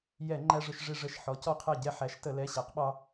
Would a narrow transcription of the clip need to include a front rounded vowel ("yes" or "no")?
no